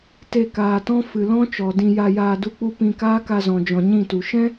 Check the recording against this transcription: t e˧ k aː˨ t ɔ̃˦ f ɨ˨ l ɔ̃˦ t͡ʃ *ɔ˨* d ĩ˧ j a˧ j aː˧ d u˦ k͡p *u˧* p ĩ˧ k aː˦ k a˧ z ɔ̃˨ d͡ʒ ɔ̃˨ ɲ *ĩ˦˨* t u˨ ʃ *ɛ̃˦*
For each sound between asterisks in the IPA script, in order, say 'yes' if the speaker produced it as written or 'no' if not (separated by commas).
yes, no, yes, yes